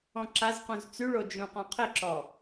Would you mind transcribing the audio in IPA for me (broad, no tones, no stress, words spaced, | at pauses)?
ɔ̃ǁazqũz t͡syɭo d͡ʒũqɔ̃qʰɪǁɔ